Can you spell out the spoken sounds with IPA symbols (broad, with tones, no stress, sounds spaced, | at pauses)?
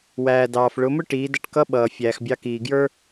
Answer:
w æː˩ d ɑː˩ f ɭ ʊ˩˧ m ʊ˥ ʈ iː˩˧ d ʌ˧ ʈ k ʌ˧˥ ɓ ʌː˩ fʲ æː˩ x bʲ ɑ˧ k iː˩ ɡ j ə˞˥